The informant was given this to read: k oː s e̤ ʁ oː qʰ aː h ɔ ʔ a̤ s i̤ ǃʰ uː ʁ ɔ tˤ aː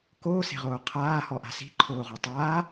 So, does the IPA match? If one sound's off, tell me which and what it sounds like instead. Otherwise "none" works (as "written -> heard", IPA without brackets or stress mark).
uː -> oː